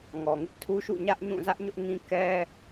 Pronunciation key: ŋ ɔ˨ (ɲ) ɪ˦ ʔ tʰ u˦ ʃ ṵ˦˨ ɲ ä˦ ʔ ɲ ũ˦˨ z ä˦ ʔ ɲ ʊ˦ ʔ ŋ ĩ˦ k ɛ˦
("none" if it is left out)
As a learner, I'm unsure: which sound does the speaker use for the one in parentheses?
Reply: ŋ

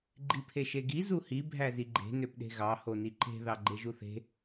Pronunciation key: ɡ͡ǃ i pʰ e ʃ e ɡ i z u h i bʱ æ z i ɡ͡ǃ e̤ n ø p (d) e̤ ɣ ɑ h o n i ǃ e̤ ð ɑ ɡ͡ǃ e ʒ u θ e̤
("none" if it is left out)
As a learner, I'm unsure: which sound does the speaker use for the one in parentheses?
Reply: ɗ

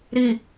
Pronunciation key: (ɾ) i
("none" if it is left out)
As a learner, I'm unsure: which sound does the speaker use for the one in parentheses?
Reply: ɾ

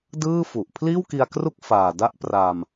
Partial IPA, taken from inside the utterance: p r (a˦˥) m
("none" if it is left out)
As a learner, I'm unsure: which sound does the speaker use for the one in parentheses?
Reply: a˧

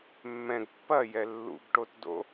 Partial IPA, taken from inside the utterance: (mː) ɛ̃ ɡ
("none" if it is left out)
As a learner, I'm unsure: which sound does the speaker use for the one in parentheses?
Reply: mː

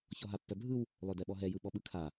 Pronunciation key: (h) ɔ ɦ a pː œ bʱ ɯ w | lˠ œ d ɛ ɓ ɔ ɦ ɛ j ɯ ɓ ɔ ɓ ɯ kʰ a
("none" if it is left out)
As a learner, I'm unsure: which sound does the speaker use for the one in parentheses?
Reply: ç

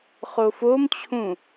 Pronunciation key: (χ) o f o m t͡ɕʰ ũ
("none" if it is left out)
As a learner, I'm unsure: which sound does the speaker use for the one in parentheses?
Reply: χ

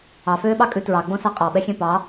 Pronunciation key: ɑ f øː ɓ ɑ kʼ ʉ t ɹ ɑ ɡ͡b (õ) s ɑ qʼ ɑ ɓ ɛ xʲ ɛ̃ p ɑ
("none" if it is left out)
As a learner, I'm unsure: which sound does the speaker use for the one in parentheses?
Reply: õ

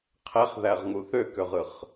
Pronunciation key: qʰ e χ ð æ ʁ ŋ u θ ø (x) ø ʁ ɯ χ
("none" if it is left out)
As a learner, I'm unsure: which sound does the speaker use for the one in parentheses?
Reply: k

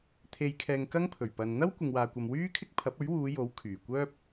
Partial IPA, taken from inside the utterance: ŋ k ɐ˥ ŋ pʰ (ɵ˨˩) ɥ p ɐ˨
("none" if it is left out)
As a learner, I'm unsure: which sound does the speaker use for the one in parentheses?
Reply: ɵ˨˩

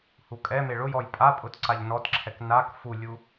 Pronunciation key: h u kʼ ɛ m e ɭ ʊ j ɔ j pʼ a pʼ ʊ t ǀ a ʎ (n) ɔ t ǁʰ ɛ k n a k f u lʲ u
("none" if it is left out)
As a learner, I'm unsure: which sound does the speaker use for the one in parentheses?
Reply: n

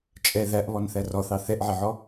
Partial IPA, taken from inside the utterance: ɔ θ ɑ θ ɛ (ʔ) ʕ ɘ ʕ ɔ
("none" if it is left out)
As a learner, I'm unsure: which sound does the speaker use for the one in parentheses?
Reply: ʔ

